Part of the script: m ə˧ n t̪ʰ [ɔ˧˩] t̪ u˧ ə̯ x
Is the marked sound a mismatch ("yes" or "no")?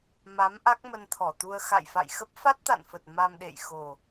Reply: no